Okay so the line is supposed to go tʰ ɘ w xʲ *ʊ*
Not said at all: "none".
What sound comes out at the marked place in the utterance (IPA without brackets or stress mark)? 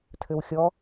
ɔ